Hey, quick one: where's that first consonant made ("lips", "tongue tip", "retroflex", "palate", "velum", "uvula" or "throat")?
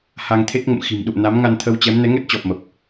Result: throat